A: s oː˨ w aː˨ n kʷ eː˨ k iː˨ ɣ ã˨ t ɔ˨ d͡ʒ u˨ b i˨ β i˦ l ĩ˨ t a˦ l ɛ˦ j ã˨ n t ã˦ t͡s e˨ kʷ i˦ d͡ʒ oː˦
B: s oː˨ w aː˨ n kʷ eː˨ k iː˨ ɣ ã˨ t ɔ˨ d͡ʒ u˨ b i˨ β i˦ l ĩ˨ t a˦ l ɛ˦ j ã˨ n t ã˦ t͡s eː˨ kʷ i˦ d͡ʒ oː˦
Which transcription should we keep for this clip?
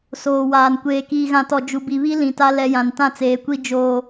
B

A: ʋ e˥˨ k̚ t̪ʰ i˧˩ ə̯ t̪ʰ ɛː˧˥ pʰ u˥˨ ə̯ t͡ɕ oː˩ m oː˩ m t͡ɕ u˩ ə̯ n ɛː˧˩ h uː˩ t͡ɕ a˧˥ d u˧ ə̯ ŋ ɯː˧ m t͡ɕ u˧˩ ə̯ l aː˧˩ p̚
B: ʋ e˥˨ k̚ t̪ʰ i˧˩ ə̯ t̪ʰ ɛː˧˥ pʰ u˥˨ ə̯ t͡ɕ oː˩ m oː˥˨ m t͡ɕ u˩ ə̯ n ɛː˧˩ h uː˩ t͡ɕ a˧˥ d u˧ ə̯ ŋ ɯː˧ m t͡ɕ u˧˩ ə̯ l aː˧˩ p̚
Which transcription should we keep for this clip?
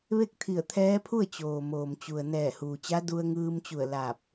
A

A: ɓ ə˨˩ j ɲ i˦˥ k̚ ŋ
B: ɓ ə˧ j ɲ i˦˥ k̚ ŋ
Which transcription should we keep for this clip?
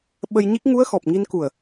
B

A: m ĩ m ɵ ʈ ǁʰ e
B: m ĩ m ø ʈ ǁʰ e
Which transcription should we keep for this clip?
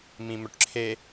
A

